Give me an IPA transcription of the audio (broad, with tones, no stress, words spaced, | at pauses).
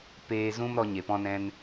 peː˧zũ˦mɾɔ˧ ɲe˨pɔ̃˧nɛ̃˧n